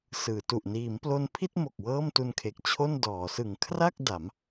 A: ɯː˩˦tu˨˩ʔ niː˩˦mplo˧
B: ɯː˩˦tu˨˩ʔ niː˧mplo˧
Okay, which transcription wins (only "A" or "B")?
A